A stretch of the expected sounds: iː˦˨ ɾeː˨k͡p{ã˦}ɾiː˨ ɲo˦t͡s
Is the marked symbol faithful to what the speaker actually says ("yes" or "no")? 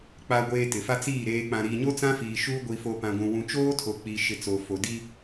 no